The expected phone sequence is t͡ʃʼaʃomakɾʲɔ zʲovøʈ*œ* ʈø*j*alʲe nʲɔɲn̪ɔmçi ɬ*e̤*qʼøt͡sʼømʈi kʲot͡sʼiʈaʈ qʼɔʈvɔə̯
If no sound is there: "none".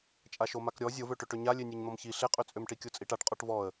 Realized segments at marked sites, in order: ø, ɲ, e

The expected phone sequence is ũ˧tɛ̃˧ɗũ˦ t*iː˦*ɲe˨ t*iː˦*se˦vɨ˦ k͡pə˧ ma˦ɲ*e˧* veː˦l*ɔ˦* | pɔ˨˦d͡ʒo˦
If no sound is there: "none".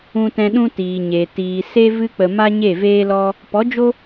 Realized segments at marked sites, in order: iː˨, iː˨, e˦˨, ɔ˦

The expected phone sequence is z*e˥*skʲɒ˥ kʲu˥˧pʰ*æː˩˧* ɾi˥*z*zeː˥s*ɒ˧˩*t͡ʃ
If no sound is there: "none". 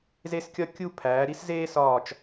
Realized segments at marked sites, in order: e˥, æː˩˧, s, ɒː˧˩

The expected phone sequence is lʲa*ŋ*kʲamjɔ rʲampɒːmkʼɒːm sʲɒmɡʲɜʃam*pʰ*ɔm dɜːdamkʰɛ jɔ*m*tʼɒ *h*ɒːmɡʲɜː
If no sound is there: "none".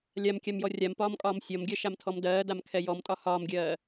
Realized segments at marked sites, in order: m, tʰ, m, h

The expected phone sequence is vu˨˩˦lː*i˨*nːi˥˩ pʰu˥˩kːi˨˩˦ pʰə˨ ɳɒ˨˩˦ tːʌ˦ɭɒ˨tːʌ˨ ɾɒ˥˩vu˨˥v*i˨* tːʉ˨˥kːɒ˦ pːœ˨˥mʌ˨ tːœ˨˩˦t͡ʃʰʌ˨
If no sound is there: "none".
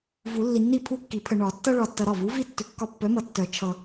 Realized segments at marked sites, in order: i˨, i˦

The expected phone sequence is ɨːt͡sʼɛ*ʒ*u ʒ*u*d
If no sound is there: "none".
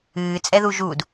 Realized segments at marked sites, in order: ð, u

